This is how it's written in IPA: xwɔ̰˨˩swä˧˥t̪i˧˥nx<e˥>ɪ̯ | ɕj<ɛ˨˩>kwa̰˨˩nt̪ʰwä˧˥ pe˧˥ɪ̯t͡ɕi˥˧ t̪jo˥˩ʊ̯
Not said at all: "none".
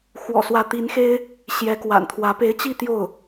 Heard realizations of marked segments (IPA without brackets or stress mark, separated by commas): e˥, ɛ˧˥